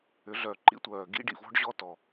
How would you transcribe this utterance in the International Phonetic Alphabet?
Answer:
ʏ˨˩˦ɮœ˨˩˦ǃḭ˥tʷœː˨˩ ɡḭ˥ɖḭ˨˩ vɔ̤˥ɖʑɔ˥tɔ˨˩

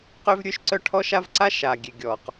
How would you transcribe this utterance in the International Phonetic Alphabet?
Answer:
qø˥vɾʲø˥ʃǀœ˥ ʈʰɔ˥ʃa˥v ǀa˥ʃa˩ɡʲe˩ ɡʲɔ˩q

